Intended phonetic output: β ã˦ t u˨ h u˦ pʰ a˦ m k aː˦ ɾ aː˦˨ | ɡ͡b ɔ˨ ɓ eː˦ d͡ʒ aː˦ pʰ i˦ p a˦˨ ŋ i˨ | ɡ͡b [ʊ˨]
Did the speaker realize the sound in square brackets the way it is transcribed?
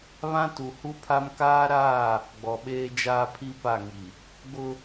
no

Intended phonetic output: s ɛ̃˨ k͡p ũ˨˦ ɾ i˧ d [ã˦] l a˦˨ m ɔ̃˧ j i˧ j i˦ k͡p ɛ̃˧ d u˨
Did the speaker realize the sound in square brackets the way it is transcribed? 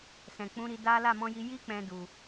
no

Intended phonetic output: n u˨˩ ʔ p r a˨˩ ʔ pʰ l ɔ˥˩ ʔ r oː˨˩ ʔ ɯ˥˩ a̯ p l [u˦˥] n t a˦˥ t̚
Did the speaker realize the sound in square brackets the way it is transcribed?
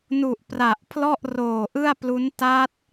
yes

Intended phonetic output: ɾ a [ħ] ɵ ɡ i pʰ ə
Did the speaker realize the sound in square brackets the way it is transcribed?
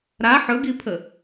yes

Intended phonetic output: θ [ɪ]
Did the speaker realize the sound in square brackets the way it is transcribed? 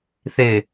yes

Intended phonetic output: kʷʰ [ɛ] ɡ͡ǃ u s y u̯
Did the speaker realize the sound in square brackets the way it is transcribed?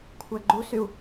no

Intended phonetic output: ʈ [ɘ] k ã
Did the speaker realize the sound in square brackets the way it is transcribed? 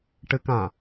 yes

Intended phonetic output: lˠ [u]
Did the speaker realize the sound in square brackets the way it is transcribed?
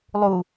yes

